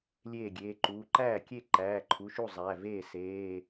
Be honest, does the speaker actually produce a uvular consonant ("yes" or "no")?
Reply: no